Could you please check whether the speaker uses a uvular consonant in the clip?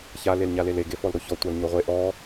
yes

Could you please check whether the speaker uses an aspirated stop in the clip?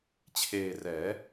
yes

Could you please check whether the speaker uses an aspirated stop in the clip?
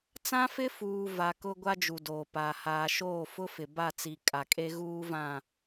no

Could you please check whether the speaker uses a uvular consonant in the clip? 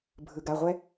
yes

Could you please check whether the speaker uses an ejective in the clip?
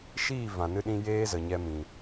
no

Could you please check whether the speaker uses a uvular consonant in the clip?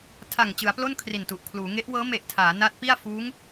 no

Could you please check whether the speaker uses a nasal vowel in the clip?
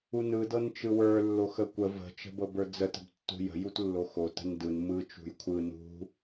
no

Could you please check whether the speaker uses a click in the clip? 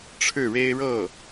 no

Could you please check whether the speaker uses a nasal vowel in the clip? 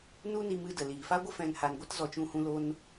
yes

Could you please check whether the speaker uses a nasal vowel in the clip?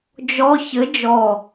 no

